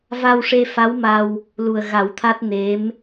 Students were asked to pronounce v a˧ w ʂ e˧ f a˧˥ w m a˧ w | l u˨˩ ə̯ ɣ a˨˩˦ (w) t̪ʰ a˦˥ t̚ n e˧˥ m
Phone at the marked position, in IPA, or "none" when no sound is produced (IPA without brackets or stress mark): w